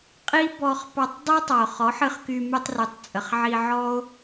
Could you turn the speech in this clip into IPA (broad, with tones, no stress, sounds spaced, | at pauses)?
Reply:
qʼ i˦ b ɔ˧ χ p ɑ˧ tˤ dˤ o˦ tˤ ɑ˨ o̯ χ ɔ˨˦ ħ ɨ˧ χ k y˧ m y˧ tˤ r y˨ tˤ t͡sʼ ə˨ χ ʕ i˧ ʕ ɔ˦ o̯